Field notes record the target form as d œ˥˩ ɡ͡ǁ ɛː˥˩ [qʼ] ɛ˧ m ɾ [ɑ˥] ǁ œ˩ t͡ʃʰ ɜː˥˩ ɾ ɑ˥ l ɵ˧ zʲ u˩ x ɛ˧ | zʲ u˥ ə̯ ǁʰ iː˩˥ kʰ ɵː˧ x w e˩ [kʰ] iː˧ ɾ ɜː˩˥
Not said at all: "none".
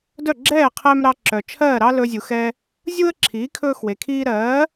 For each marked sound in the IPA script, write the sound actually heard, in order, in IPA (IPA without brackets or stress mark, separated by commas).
qʰ, ɑ˧, kʰ